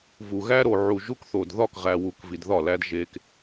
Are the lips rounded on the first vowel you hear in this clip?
yes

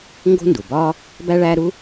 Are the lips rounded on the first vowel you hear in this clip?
yes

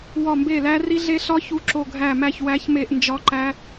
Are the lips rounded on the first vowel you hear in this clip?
yes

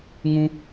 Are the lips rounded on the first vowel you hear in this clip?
yes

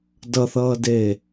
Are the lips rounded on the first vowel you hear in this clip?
no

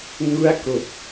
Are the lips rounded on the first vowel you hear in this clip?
yes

